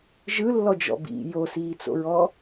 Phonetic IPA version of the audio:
ʒɯlːɔd͡ʒɔ̰ bḭ josiːt͡so̰ɹɔ

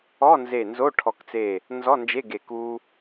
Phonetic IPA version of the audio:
ɔ˧˥˧nze˧˩ nzo˧˥˧ʈʰɔ˧˩kt͡se˧˩ | nzɔ˧˥˧nd͡ʒe˧˥˧ ɡe˧˩k u˧

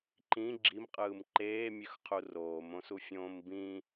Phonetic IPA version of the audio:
ǃĩ ɡ͡ǁimqʼɯːm ǃeːmʲøxqʰu roːmõsufʲõːm bĩ

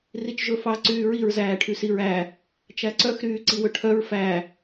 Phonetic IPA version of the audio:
rit͡ʃʒɵfɑ ǀyːɹiɹ zæːʈʰysiɹæ | t͡ʃæǀœx ɾyːǀiwɵʈʰœɹ fæ

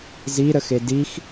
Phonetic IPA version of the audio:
ziɾəxe dix

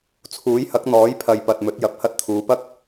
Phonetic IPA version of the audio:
t͡sʰuː˨˥jhɐ˨˥k̚n̪ɔː˨˥j pʰɐ˨jpɐ˨t̚ mɵ˨˥t̚jɐ˨˥p̚ hɐ˧t̚t̪ʰuː˨˧pɐ˥k̚

